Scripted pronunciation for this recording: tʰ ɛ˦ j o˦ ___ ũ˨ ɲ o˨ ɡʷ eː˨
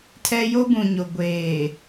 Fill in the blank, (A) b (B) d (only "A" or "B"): A